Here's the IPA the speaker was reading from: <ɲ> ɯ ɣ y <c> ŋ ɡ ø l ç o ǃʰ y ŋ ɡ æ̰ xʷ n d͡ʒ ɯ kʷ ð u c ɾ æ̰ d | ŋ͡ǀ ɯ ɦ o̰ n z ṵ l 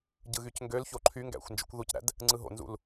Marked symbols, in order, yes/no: no, yes

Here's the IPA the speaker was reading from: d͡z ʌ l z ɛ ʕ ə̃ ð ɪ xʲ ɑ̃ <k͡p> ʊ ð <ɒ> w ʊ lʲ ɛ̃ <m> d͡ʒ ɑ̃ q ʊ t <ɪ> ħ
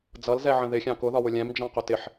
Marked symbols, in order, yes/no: no, yes, yes, yes

